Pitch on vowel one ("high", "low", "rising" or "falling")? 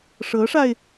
rising